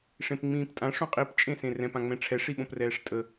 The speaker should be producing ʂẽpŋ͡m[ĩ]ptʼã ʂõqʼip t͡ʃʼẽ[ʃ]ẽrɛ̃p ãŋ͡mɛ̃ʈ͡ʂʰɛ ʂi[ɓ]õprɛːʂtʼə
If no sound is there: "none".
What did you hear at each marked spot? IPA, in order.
ĩː, s, ɓ

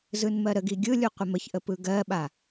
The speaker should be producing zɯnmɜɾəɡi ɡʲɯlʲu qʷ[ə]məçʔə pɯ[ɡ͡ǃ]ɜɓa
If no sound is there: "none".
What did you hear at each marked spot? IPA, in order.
ə, ɡ

